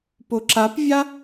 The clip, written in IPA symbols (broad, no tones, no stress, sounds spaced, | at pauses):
p o ǁ a p vʲ a